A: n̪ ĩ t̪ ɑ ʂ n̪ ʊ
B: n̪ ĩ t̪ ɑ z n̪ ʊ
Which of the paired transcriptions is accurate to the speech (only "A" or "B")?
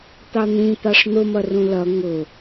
A